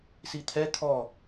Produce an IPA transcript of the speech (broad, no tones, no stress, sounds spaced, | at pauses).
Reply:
s i t̪ʰ ɛ t̪ʰ ɔ